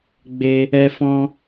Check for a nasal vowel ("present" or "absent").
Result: present